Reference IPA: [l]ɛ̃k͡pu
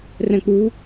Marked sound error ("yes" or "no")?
yes